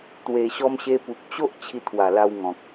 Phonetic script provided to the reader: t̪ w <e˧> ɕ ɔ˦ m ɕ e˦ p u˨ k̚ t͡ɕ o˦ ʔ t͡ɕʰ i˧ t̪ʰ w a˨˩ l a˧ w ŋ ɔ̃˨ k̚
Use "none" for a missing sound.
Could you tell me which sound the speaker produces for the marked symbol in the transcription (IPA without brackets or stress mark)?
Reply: e˧